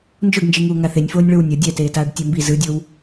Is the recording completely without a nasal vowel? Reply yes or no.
yes